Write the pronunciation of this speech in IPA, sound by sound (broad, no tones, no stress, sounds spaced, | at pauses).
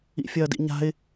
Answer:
ḭ fʲ ɐː d ḭ ɲ a̤ ɪ̯